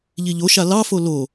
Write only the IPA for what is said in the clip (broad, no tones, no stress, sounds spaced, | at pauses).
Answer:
ʎ i ʎ o ʃ a l ɑ f o l o